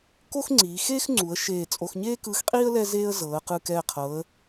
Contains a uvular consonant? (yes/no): yes